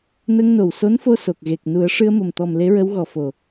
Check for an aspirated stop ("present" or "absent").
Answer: absent